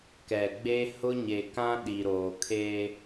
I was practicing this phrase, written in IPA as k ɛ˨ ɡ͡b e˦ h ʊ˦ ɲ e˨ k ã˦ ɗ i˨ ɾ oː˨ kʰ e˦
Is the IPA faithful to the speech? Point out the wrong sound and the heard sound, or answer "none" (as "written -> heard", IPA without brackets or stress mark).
none